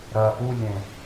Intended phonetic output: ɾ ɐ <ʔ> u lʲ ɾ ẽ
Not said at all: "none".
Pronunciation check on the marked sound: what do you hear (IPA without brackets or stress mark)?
ʔ